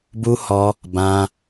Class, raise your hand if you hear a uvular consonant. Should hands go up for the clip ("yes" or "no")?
no